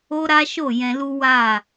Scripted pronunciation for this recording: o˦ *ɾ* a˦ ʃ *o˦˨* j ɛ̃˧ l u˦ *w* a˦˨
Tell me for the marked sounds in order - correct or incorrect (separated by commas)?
correct, correct, correct